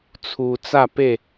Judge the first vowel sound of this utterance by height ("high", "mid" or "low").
high